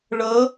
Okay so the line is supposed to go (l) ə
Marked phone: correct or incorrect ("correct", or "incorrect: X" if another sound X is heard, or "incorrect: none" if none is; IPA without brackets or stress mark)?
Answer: incorrect: ɭ